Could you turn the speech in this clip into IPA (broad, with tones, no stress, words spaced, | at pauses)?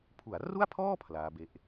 pʰu˩˦a̯ru˥˩a̯pʰɔː˥˩ pʰlaː˦˥ be˦˥ʔ